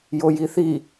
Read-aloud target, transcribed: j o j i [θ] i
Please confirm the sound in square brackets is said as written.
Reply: yes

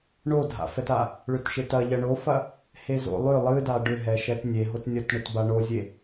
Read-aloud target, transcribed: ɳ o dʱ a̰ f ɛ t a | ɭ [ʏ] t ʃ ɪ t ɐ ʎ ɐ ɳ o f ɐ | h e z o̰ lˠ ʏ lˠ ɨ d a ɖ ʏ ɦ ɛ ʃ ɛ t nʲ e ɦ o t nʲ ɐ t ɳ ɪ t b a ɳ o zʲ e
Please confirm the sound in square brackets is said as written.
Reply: yes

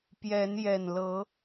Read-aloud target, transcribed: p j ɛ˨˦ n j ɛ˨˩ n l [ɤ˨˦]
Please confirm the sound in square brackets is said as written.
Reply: yes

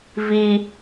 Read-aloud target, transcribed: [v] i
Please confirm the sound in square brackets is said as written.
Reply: yes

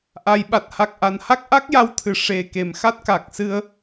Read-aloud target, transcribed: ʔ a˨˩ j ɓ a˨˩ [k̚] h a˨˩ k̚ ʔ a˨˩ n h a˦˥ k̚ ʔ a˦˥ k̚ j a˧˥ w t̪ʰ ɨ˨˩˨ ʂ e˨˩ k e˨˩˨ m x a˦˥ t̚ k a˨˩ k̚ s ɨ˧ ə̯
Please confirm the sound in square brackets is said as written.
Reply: no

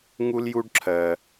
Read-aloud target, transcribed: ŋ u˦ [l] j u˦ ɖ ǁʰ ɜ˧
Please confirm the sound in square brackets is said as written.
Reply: yes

